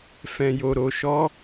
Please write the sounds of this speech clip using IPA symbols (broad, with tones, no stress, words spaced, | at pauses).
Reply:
fɛ̃˨jo˨ɾo˨ ʃɔ˨˦